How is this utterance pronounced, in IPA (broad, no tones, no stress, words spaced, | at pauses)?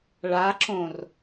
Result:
ɭaǁõr